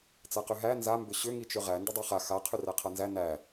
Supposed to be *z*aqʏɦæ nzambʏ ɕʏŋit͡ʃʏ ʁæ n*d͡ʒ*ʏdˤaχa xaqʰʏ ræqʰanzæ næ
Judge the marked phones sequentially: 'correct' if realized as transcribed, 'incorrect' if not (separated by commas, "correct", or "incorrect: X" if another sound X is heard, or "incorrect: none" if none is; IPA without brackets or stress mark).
incorrect: t͡s, incorrect: d